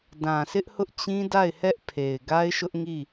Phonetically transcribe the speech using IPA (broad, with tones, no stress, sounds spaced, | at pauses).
d ã˨ sʰ ɪ˦ ʔ h ʊ˦ ʔ t͡ɕ ĩ˦ d a˦˨ ɪ̯ h ɛ˦ ʔ pʰ e˨ ɪ̯ ɡ a˦ ɪ̯ ʃ ʊ˦ ʔ ŋ i˦˨